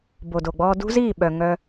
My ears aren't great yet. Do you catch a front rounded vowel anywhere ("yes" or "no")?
yes